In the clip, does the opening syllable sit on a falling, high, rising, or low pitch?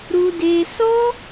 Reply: high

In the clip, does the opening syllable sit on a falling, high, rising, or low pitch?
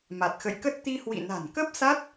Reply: low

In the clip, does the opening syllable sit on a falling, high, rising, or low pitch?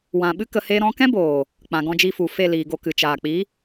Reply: low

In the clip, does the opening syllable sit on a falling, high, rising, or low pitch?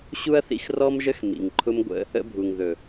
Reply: high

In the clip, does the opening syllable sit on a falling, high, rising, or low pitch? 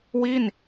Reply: falling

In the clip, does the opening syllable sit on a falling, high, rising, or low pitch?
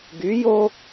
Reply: rising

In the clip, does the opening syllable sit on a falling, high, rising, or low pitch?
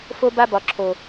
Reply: high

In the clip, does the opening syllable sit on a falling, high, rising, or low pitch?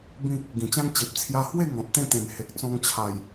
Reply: falling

